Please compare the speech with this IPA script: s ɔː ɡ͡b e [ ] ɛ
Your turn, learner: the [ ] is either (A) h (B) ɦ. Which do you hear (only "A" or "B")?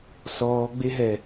B